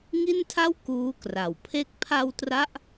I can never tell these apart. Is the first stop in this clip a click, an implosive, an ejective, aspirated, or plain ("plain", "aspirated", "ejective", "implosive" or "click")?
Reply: aspirated